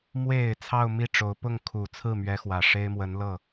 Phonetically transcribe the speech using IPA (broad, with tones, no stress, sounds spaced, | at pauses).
m w e˨˩ ɪ̯ t͡sʰ ɑ˥˧ ʊ̯ m i˥˩ ʈ͡ʂ o˧˥ ʊ̯ p ʊ˥˩ ŋ kʰ u˨˩ t͡sʰ ɹ̩˥˩ m ɥ ɛ˧˥ x w ä˨˩ ʂ e˥ ɪ̯ m w ə˧˥ n l ɤ˥˩